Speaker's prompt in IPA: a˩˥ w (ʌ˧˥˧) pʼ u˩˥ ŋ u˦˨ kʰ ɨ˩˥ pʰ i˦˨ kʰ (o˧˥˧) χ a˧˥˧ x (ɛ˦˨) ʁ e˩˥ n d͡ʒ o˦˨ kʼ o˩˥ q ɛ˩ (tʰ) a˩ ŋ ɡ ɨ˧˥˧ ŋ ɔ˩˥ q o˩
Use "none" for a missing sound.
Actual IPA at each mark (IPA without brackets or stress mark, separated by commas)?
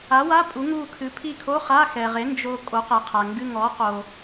a˧˥˧, o˧˥˧, ɛ˩, qʰ